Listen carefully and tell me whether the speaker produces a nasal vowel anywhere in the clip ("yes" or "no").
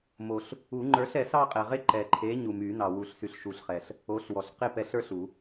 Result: no